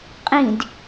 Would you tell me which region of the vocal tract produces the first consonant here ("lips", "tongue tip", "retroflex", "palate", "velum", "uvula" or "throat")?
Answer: uvula